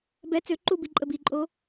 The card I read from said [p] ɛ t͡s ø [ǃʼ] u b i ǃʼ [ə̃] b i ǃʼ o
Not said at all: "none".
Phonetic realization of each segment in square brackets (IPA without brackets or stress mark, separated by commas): b, ǃ, ə